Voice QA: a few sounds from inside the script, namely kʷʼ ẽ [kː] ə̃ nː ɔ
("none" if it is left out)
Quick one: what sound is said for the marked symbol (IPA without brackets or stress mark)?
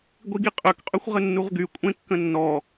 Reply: kː